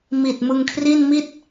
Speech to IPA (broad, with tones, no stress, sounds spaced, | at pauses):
m i˨˩ t̚ m ɯ˧ ŋ kʰ r i˥˩ n m i˥˩ t̚